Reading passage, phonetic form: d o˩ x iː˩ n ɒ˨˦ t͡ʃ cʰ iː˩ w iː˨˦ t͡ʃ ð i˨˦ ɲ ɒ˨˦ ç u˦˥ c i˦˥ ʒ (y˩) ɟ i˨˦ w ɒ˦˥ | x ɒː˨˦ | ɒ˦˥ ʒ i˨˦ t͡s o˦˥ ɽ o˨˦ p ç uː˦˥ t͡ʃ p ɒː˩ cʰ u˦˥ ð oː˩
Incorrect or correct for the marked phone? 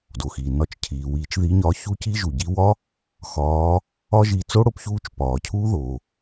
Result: incorrect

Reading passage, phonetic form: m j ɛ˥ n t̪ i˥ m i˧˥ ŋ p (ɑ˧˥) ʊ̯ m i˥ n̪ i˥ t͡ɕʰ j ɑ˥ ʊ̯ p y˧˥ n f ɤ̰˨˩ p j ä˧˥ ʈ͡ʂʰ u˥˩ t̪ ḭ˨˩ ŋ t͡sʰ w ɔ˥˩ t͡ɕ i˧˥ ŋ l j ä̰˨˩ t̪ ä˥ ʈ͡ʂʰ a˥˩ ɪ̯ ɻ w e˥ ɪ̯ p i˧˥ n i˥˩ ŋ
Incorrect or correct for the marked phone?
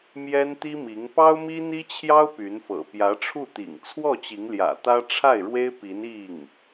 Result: incorrect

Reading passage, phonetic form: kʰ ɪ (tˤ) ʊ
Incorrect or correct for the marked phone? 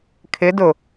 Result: incorrect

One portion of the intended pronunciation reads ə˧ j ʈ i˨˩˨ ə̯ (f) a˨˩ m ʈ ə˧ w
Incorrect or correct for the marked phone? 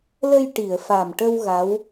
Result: correct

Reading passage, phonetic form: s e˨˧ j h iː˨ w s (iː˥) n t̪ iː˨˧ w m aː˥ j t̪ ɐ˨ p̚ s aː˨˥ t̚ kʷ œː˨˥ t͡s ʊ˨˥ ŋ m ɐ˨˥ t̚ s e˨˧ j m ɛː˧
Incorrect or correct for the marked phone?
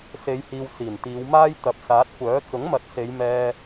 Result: incorrect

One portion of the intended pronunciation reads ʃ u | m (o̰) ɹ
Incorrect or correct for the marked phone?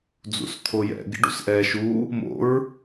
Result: correct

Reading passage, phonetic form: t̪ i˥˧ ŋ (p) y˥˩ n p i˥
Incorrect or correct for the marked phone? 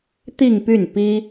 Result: correct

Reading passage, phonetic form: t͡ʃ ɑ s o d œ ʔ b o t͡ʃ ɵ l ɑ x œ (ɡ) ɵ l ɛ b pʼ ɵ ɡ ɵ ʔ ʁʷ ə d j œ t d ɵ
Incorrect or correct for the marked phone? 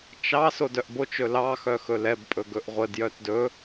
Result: incorrect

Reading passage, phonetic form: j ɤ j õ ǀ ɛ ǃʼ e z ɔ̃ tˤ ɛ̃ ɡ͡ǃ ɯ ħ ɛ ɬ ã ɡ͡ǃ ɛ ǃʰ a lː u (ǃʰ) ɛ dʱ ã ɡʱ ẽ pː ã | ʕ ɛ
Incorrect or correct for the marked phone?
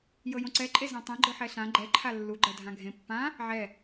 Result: incorrect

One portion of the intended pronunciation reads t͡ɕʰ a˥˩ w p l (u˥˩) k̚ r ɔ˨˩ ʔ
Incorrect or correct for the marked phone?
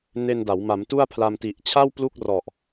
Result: correct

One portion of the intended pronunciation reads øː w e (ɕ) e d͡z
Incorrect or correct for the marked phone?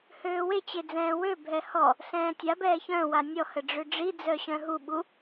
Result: incorrect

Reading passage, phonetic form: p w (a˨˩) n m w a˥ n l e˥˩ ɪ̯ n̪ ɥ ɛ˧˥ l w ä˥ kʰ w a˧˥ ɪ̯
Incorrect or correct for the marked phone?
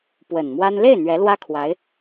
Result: incorrect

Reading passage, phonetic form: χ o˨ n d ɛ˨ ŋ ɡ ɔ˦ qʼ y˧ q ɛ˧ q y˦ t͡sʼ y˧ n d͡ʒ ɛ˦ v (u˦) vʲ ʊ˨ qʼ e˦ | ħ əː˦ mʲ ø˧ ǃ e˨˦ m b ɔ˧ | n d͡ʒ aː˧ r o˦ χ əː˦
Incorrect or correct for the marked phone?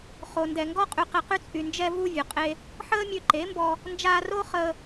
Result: correct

